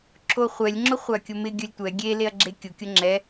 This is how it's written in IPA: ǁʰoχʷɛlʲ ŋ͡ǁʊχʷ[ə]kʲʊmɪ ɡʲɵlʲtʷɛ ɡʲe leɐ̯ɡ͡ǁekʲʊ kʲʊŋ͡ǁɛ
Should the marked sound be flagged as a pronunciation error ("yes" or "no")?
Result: yes